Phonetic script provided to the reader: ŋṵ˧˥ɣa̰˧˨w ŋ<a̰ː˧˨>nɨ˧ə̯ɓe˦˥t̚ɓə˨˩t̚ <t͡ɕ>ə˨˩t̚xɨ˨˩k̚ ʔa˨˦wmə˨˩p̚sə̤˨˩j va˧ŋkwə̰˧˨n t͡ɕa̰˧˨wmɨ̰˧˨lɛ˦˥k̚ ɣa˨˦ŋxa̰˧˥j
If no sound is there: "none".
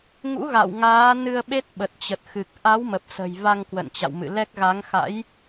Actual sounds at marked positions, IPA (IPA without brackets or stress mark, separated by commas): aː˨˦, t͡ɕ